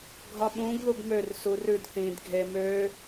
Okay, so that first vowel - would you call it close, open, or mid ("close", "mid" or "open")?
open